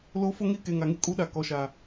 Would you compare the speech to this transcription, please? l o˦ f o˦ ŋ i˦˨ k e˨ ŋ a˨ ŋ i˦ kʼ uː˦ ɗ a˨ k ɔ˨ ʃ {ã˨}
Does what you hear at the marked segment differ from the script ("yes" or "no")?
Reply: yes